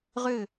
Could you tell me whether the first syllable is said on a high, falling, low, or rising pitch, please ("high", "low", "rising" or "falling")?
falling